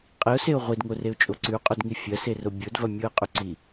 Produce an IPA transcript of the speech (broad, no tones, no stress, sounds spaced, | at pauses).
qʼ i ʊ̯ s e ʊ̯ ʁʷ i d ŋ o r e ʊ̯ t͡ʃʼ o ǀ ʉ qʼ ʉ d ŋ i fʲ ɐ s e r o bʲ o d v ɐ mʲ o ə̯ qʼ ʉ ǀ i